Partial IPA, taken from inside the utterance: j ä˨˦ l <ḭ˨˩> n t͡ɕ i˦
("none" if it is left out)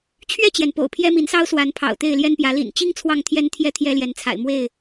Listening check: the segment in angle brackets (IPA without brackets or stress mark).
ḭ˨˩